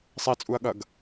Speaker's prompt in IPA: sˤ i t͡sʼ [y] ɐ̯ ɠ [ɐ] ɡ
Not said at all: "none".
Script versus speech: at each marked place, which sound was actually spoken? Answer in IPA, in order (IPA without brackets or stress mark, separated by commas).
u, ɐ